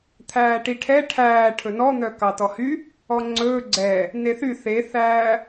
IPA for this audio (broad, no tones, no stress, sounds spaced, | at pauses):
t̪ʰ æː ʈ i ʈʰ ɛ ʈʰ æː ʈʰ ɵ n ɔ n̪ œ k ɑ t ɔ h y | ɔ ŋ͡ǀ ɵː ɡ͡ǀ ɛ | n e θ y θ e θ æː